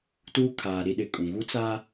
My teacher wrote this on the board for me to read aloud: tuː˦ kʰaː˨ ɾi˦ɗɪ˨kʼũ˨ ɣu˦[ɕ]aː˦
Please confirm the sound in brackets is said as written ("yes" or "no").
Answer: no